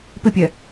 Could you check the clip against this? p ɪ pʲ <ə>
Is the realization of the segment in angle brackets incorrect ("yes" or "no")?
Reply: yes